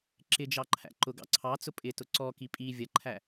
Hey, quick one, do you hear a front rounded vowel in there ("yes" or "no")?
no